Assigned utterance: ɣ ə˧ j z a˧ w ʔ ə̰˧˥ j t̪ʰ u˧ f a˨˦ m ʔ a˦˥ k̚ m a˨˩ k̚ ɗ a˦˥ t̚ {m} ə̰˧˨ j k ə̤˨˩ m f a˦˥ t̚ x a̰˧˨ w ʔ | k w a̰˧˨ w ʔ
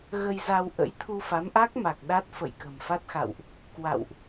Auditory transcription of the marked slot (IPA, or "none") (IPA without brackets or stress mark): f